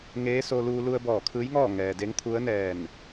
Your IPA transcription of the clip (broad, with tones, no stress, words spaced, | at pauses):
ŋeː˧˥so˧luː˧ lu˧ə̯bɔː˧˩kʰɯː˧˥jŋɔː˥˨ ŋɛː˩de˧˥ŋt̪ʰu˧˥ə̯nɛː˧˩n